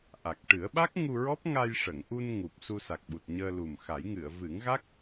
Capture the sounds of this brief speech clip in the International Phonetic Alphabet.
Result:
ʔ a˨˩ k̚ ʈ ɨ˨˩˦ ə̯ ɓ a˦˥ k̚ ŋ u˧ ɹ ɔ˦˥ p̚ ŋ a˧ j ʂ ə˨˩˨ ŋ ʔ u˧ n ŋ u˨˩ p̚ s u˧ s a˨˩ k̚ ɓ u˨˩ t̚ ɲ əː˧ l u˨˩ m x a˨˩˦ j ŋ ɨ˨˩˨ ə̯ v ɨ˨˩˦ ŋ ɣ a˦˥ k̚

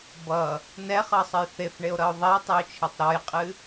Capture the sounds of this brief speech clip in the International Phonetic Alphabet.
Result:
b ʌ | n ɛ χ ɤ sˤ ə j θ e f ɳ e o̯ ɾ ʌ o̯ ðˤ ɛ e̯ tˤ e o̯ t͡ʃʰ e tˤ ɾ ɔ j qʼ ɨ

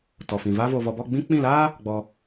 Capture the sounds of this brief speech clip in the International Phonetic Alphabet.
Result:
t ɔ˨ f ĩ˨ v aː˧ v oː˨ v ɔ˨ b ɔ˦˨ ɡ͡b ĩ˦ k͡p ĩ˦˨ l aː˦ | ɡ͡b ɔ˧

